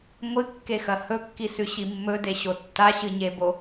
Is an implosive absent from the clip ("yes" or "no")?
yes